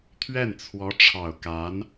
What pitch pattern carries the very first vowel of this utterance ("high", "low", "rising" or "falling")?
falling